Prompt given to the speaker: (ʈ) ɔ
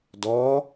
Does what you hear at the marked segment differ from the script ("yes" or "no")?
yes